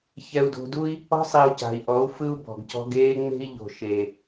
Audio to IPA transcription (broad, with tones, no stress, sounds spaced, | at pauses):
ç ɛ˧ u̯ d o̤˧ d u˦ i̯ | ɔ̤˦ sˤ i˨ u̯ c a̤˨ i̯ ʔ ɔ˨˦ u̯ f ɯ˦ u̯ b ɔ̤˨ ɡ c ɔ̤˦ ɡ eː˦ ŋ͡m e̤˦ i̯ ʎ o̤˨ ʃ e˨